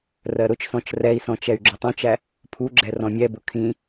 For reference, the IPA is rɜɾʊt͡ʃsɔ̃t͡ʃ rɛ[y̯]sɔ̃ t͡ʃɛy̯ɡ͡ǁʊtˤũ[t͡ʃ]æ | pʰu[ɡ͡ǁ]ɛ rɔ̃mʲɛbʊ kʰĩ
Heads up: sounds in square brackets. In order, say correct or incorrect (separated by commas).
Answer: incorrect, correct, correct